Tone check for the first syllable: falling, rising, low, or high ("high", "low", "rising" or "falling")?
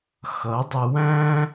rising